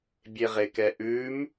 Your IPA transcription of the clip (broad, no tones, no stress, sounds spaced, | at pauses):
bʲ e ʁ e k ɛ ʔ ʉ m